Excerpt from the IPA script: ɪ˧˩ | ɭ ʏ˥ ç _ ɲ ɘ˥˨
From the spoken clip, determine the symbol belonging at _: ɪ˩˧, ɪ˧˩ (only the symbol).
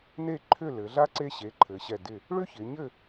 ɪ˩˧